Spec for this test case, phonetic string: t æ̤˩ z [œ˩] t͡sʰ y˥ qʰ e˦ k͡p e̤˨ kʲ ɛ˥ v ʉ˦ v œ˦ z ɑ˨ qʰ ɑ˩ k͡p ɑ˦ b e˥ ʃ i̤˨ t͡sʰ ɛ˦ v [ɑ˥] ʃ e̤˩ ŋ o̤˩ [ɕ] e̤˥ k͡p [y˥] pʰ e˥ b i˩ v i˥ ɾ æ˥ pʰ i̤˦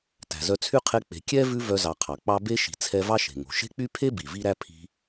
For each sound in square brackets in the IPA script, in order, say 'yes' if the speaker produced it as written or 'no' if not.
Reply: no, yes, no, yes

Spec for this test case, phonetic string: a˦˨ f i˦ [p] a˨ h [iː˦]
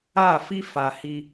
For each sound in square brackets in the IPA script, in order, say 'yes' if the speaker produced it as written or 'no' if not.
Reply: no, no

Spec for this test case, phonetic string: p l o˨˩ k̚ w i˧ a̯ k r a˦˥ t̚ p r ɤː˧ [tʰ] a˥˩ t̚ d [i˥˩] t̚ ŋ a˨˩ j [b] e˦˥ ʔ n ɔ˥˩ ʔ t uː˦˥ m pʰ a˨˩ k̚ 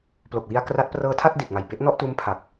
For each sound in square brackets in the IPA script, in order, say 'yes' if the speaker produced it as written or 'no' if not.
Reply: yes, no, yes

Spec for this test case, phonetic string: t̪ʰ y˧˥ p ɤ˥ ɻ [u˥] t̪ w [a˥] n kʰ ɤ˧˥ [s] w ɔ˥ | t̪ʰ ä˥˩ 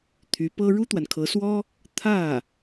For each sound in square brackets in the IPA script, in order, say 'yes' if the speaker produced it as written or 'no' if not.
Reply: yes, no, yes

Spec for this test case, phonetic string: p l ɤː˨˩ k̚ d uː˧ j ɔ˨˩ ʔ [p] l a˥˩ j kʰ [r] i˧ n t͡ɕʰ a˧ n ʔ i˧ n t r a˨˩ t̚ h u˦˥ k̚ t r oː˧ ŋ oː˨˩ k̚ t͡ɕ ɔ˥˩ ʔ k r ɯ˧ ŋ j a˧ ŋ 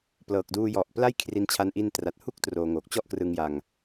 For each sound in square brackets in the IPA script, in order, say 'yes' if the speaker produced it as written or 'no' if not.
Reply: yes, yes

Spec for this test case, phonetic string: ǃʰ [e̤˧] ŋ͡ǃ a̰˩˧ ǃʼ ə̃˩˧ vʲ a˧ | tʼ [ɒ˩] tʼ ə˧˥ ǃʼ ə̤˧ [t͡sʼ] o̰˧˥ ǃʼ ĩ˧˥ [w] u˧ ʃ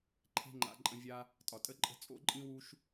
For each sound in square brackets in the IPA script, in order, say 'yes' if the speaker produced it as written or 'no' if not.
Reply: yes, yes, yes, yes

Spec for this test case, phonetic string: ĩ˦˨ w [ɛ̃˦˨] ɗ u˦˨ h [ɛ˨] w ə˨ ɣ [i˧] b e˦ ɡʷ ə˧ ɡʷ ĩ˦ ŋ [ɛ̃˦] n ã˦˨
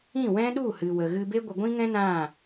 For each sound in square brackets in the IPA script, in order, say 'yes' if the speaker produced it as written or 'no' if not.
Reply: no, no, no, yes

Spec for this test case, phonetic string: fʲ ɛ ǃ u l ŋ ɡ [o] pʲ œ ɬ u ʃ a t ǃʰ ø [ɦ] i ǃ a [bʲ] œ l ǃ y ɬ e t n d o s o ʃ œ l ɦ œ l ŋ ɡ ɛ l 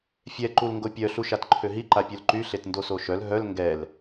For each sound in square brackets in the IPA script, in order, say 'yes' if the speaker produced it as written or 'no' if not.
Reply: yes, yes, no

